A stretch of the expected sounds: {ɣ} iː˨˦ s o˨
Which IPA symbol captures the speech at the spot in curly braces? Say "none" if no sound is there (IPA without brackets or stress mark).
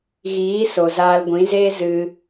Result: ɣ